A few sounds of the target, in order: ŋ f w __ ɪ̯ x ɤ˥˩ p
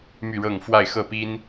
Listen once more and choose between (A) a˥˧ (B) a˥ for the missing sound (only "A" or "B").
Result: A